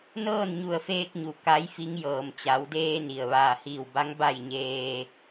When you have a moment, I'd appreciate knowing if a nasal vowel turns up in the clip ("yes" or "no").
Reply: no